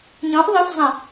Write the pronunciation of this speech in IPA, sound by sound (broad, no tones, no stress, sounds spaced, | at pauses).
ɲ ɔ̃ ʔ ðˤ ɵ f zˤ ə̃